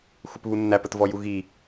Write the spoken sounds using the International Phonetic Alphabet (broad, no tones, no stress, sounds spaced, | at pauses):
xʷ ɪ p β u nː æ p ə t v ɔ j u ɣ i